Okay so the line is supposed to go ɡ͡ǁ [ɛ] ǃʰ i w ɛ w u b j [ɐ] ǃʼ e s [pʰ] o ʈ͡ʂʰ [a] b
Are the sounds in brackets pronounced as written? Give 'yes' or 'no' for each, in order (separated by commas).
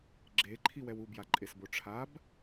no, no, no, yes